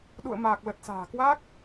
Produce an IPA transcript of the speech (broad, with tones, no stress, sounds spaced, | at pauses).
ɗ ṵ˧˨ ə̯ m aː˨˩ k̚ l ə˨˩ t̚ s a̤ː˨˩ k w a˦˥ k̚